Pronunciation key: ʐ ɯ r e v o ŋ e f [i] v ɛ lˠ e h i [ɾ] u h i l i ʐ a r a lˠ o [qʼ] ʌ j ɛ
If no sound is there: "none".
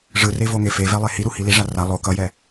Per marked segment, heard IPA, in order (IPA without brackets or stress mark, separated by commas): e, ɾ, k